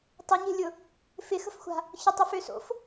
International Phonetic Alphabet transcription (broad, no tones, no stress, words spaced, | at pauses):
tˤøɲe̤lʲʊ | fɪxə̤fxʷa̤ | çʊtˤəfø so̰f